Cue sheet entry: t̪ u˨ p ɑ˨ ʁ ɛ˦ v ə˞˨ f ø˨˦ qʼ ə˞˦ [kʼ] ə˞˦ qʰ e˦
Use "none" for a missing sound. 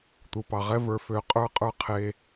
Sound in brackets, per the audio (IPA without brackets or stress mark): qʼ